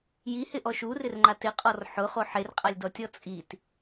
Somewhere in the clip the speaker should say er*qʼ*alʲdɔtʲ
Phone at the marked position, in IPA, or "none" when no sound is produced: qʼ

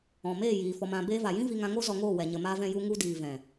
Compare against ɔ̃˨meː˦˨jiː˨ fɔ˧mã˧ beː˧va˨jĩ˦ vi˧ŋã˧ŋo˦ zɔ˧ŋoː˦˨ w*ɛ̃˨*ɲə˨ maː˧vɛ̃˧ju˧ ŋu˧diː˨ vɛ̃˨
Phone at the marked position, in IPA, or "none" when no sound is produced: ɛ˨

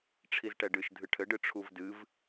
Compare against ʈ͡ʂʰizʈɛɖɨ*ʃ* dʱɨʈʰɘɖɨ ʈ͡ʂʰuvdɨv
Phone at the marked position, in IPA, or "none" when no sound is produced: ʃ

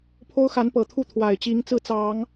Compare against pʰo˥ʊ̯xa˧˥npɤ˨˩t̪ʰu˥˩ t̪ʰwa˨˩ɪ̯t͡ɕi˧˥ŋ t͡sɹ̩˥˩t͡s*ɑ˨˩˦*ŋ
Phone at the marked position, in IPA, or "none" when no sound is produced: ɑ˨˩˦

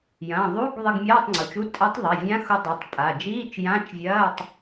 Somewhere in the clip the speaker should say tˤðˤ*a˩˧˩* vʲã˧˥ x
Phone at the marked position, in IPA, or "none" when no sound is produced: a˩˧˩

